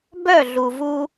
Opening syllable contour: falling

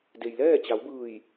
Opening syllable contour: low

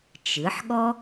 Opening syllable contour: rising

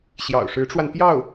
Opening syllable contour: low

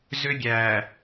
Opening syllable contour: high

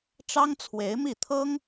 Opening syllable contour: high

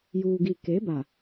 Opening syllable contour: low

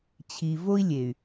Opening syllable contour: low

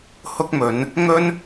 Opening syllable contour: high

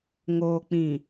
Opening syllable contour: low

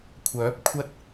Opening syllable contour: rising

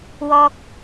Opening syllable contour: high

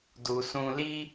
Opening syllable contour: low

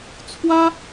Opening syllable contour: high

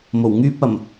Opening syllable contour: low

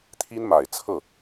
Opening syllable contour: high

